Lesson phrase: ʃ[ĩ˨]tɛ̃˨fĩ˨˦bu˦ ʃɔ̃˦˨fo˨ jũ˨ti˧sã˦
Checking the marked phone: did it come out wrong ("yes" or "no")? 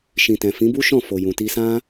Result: no